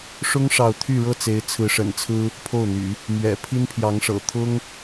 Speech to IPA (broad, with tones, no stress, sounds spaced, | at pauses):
ʂ ʊ˥ ŋ ʂ ɑ˥˧ ʊ̯ t̪ʰ y˥˧ ɻ ɤ˥˩ t͡s e˧˥ ɪ̯ t͡sʰ ɹ̩˧˥ ʂ ə̰˨˩ n t͡sʰ ɹ̩˥ | pʰ o˥˩ ʊ̯ n̪ y̰˨˩˦ | m ɥ ɛ̰˨˩ pʰ i˥ n pʰ j ɑ˧˥ ŋ ʂ ɤ̰˨˩ t̪ʰ ʊ˥ ŋ